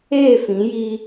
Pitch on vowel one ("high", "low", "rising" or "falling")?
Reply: falling